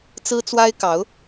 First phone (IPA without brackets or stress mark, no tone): t͡s